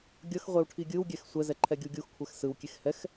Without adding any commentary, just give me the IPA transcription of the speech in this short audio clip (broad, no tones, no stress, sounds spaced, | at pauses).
ɡʲ ʌ x ʁʷ e w ʈʰ i ɡʲ ɯ w ɡʲ ɛ x sʷ ɛ z ɛ ǃʰ ɛ ɡʲ u ɡʲ u x kʷʰ ɛ x s ɯ w kʲ e x h ɛ x